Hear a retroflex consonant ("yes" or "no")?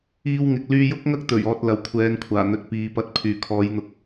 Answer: no